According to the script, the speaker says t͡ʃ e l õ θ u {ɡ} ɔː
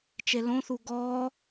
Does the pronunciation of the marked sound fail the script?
no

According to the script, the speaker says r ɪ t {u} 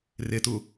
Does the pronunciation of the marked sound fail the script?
no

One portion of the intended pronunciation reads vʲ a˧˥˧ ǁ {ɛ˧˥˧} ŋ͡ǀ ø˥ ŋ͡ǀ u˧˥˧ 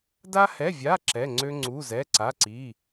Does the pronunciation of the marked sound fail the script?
no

